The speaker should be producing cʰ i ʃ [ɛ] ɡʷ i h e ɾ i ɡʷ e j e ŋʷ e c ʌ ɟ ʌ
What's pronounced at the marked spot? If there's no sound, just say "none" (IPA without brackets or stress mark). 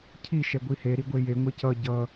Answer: ɛ